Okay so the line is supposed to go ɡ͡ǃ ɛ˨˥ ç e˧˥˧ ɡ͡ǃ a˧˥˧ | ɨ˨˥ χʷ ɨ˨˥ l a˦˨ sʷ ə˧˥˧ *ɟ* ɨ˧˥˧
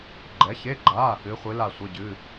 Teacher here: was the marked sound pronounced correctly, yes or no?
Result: yes